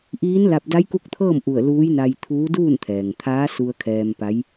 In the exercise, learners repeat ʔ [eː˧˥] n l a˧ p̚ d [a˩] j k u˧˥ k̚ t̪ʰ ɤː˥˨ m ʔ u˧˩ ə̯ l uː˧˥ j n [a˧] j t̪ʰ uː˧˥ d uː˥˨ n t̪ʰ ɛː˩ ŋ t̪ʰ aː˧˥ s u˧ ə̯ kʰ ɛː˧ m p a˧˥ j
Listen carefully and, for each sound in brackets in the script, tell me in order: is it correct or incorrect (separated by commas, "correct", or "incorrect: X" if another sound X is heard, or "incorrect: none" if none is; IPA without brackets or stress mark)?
incorrect: iː˧˥, incorrect: a˧˥, correct